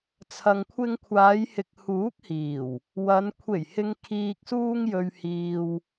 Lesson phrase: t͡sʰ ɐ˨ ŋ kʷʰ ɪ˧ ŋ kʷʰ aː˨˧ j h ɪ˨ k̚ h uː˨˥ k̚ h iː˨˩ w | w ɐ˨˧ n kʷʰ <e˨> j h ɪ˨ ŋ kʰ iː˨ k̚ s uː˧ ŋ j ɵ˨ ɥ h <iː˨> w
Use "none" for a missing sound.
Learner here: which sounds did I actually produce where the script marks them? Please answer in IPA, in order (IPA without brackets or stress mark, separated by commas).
e˨˩, iː˨